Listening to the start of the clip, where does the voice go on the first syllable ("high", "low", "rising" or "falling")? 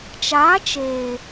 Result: rising